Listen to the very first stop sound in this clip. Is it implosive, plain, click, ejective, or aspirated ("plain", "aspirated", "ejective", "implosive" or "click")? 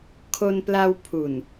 aspirated